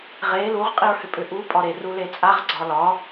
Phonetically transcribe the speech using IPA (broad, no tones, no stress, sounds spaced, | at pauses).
ʁ e l u ʁ qʼ i ɹ h ʏ pʼ ʏ ʔ u pʼ ɒ ɾ e r u l e t͡sʼ a ʁ ɡ͡ǀ ɒ l ɒ